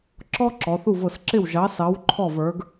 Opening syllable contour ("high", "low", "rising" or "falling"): high